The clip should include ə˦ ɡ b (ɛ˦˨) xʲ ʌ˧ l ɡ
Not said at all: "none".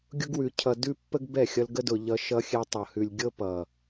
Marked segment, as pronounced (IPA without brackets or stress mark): ɛ˦˨